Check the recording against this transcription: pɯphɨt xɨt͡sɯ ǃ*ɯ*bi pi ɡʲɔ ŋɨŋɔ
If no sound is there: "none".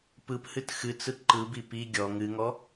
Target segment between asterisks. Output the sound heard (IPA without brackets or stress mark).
ɯ